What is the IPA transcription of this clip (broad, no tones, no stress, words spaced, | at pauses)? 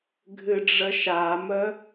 ɡʱɨɖ͡ʐəʃamə